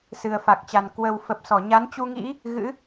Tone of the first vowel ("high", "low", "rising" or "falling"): low